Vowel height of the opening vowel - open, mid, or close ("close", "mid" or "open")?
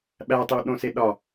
open